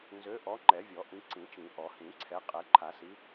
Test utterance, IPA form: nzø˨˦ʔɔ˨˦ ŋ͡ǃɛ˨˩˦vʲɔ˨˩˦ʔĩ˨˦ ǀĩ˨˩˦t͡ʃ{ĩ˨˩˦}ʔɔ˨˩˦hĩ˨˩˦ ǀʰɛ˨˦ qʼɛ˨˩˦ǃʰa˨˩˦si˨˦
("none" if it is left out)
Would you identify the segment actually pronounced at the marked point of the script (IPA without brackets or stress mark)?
ĩ˨˩˦